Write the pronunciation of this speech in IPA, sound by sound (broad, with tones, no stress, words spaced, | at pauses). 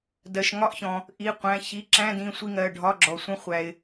dɜ˩ʃ ŋɒ˦˥ʔçɔ̃˩ | ʔi˩˧˩qʷæ̃˩˧˩ çi˩˧˩ǁæ̃˧˥˧d ĩ˩˧˩sʷi˦˨ŋɜ˩˧˩ɖʱɒ˧˥˧ ɡ͡ǁɔ˩sʷə̃˦˨ χʷæ˩ɪ̯